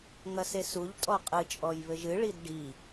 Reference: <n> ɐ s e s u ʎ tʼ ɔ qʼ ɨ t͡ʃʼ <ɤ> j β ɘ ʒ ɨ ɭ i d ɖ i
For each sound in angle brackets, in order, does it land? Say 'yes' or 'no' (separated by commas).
no, no